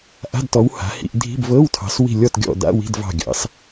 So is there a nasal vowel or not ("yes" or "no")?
no